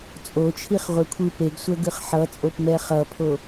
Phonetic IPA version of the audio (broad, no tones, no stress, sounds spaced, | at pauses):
t͡sʼ o t͡ʃʰ i χ ʁʷ e kʷʰ ɯ p e ɡ sʷ ɛ ɡ ɯ χ ħ ʌ t͡sʼ o p m ɛ χ ʌ pʰ o